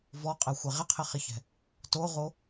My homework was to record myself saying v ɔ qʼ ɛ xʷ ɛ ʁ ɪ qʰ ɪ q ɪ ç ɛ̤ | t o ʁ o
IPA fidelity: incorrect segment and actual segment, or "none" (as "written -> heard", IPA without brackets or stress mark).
q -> χ